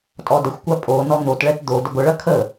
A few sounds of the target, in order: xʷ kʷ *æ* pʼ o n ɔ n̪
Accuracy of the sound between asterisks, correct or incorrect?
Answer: incorrect